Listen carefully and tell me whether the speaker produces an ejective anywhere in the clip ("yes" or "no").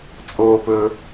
yes